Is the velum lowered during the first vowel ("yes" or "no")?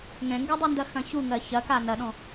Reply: yes